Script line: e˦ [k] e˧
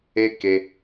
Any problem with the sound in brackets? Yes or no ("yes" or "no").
no